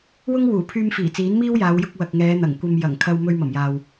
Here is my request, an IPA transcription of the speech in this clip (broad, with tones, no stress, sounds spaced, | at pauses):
w ʊ˥ ŋ w uː˨˩ pʰ yː˧ m f iː˨˩ t͡s iː˨˥ n m iː˥ w j aː˨˧ w j ʊ˧ k̚ w ɐ˨ k̚ ŋ ɛː˨˧ n̪ ɐ˨˩ ŋ kʷ ɐ˧ m j ɐ˨˩ ŋ kʰ ɐ˧ w m ɵ˧ ɥ m ɐ˨˩ m j aː˨ w